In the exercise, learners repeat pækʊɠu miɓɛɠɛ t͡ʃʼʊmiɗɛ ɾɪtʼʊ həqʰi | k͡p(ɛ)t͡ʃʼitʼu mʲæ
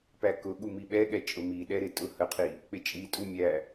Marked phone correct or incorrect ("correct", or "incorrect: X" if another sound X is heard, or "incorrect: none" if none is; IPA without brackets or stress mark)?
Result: incorrect: ɪ